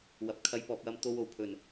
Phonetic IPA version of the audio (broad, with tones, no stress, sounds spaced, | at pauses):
w ɐ˨ p̚ kʰ ɐ˧ j p ɔː˨ p̚ j ɐ˧ m t̪ o˧ w o˨˩ w pʰ ɵ˨˩ n